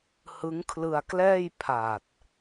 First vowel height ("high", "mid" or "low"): high